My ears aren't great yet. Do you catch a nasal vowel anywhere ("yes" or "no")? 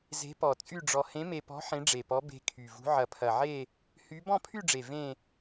yes